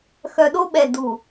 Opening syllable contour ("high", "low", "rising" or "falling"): low